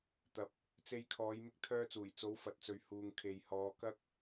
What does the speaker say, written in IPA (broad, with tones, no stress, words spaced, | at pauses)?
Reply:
t̪ɐ˨˥p̚ | t͡se˧jkʰɔː˨˧j mɪ˥k̚t̪ʰœː˥t͡suː˨˩j t͡so˨˥wfɐ˨t̚t͡sɵ˨ɥ huː˨ŋkʰe˨j hɔː˨˧kɐ˥k̚